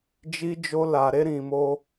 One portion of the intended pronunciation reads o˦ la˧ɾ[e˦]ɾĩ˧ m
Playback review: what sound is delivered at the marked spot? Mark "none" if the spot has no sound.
e˦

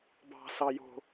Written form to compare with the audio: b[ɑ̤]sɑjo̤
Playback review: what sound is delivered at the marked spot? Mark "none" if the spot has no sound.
ɑ̤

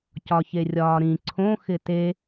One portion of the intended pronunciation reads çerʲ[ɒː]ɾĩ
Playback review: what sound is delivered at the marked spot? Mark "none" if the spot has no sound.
ɒː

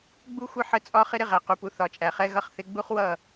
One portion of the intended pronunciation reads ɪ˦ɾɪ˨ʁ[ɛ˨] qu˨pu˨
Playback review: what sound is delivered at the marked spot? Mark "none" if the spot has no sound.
æ˨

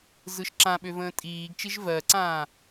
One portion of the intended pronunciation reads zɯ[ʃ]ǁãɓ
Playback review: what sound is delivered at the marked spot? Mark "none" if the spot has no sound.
ʃ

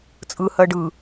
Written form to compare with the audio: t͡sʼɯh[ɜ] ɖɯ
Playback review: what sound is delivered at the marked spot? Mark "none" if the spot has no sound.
ɜ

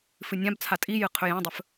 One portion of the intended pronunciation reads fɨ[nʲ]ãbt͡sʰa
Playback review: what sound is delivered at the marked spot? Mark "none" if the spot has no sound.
nʲ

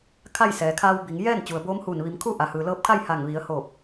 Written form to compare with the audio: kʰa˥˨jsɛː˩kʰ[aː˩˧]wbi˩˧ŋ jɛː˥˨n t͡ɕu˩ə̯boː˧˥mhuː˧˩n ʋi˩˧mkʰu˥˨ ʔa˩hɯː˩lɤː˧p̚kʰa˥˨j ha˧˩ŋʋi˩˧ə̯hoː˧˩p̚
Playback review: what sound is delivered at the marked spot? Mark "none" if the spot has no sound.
aː˧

